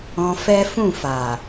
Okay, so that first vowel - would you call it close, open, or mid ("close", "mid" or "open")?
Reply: mid